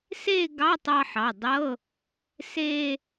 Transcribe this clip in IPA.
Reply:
s e˥˧ ɡ ɑ˧˥˧ tˤ ɑ˧ ħ ɑ˩˧˩ dˤ ɤ˧˥˧ | s e˧

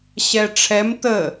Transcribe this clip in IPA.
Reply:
ɕ ɛ ʈ͡ʂʰ ɛ m t̪ ə

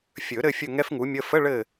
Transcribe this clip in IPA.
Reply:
fʲ ɵ˨˩˦ ɾ ɘ˦˨ fʲ ɵ˦˨ ŋ ɛ˥ f ŋ u˩˥ mʲ ə˧˥˧ f ə˧˥˧ ɭ ɘ˦˨

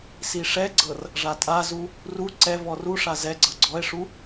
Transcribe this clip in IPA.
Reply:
s i ʂ ɛ ɡ͡ǀ ɤ r | ʐ a tʼ a z u | r u ǀ ɛ v ɔ r u ʂ a z ɛ ɡ͡ǀ ɤ ɡ͡ǀ ɔ e̯ ʂ u

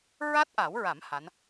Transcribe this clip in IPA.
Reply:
ɹ a˦˥ t̚ ʔ a˨˩˦ w ɹ a˨˩˦ m h a˧˥ n

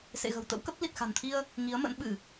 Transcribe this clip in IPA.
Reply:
s ḛ˧˨ ɣ ə̤˨˩ w t̪ ə̰˧˥ w k ə˦˥ p̚ l i˨˩ t̚ x a̤˨˩ n t̪ʰ i˧ ə̯ | ŋ i˨˦ ə̯ m ə̰˧˥ n ɓ ɨ˧˩˨

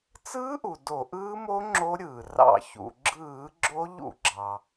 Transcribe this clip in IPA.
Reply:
t͡s ɯː˦˥ ʔ u˩ d o˧˩˧ ʔ ɯː˦˥ m o˦˥ ŋ͡ǁ o˦˥ ɾʲ ɯː˩ r ɑ̰˧˩˧ ç ṵ˩ ɡ͡ǁ ɯː˧˩˧ ɡ͡ǁ o˦˥ ʎ ṵ˧˩˧ ɡ͡ǁ ɑ˩

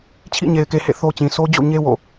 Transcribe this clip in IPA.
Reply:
t͡ɕʰ ḭ˦˨ ɲ e˨ ɪ̯ k e˨ h ḛ˦˨ θ o˦ t͡ɕ ĩ˨ s o˦ d͡ʑ o̰˦˨ ɲ e˦ w o̰˦˨

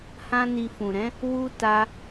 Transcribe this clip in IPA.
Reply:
h ã˦ n i˧ f ũ˨ ɾ ɛ̃˨˦ | w u˦ t a˦

